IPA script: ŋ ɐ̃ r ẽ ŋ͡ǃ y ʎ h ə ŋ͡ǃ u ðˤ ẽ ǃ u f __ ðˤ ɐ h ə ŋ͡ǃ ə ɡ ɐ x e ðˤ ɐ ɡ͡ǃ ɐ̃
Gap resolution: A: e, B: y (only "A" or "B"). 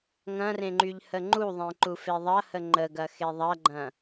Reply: A